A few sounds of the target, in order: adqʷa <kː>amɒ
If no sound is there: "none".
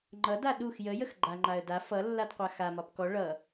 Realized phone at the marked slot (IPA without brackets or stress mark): x